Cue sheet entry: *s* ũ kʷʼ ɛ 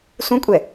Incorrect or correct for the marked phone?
correct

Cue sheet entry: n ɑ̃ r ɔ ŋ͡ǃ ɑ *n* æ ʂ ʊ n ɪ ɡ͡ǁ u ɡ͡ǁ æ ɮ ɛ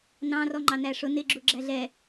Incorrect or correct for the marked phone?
correct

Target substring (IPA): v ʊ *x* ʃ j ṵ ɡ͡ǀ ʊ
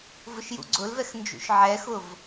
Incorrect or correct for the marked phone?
incorrect: none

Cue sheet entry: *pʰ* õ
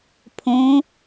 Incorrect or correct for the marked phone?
correct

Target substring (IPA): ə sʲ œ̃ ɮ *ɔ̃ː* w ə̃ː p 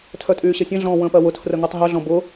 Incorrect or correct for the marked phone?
correct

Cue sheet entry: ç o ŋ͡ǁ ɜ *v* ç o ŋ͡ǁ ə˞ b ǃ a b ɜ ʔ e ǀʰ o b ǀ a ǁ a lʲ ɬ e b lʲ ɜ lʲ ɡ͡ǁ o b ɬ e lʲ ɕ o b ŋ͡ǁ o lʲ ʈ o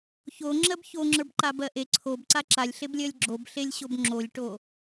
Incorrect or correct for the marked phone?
incorrect: b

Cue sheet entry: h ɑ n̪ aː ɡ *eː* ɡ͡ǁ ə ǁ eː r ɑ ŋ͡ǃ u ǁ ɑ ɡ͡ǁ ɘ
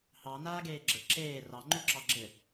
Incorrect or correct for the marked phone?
correct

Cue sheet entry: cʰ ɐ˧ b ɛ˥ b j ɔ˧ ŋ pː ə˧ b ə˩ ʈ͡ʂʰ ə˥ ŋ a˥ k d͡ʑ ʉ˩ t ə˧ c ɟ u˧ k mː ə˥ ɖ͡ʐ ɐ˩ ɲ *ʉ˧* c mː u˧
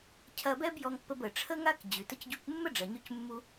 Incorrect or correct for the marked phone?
correct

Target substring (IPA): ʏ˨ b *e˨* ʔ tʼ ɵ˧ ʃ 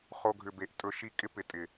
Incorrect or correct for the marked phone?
correct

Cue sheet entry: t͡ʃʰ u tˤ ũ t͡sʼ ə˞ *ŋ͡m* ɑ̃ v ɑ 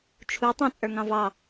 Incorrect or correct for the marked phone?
incorrect: ŋ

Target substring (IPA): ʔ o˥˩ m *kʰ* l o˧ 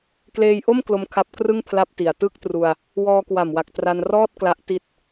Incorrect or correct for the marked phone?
incorrect: k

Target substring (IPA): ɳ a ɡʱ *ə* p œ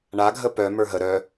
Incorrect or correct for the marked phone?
correct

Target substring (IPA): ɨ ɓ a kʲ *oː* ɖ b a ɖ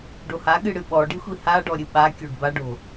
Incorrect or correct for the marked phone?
incorrect: o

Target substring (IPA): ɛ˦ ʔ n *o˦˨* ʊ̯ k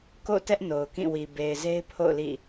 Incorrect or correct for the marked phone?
incorrect: o˨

